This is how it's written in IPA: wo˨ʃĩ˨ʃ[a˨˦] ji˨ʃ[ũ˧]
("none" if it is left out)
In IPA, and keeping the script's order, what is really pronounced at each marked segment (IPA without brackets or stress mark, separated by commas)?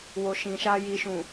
a˧, ũ˨